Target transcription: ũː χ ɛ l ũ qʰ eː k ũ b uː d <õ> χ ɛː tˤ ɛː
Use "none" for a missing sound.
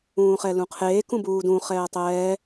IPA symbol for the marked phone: ũ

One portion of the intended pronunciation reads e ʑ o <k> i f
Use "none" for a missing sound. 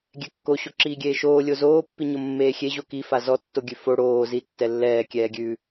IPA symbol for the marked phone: k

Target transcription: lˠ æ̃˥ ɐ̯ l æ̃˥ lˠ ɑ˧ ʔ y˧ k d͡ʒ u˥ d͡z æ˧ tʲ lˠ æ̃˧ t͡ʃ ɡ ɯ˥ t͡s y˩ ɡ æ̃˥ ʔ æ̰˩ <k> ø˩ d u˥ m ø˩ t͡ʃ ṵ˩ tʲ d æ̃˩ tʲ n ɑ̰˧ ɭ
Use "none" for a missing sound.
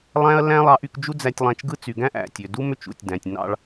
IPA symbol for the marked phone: tʲ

